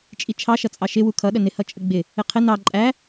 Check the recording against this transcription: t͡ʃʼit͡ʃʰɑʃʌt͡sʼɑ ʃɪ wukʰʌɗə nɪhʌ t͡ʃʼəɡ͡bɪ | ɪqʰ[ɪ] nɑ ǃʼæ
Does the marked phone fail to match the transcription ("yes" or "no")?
no